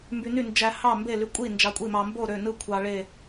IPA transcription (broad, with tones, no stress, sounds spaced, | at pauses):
m b y˧ n y˥˨ n d͡ʒ æ˧ h ɑ˥˨ m b e˥˨ l y˧ kʷʼ i˥˨ n d͡ʒ ɑ˧ kʷʼ i˥˨ m ɑ˧ m b o˥˨ ɾ ø˥˨ n ɯ˥˨ kʷʰ ɑ˧ ɭ e˥˨